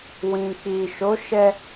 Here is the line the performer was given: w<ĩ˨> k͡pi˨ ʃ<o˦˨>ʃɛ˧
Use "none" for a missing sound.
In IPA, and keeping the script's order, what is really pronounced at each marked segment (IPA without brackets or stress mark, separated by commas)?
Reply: ĩ˨, o˨˦